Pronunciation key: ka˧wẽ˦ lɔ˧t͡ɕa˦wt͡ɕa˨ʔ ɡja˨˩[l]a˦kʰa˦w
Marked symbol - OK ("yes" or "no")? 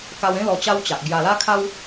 yes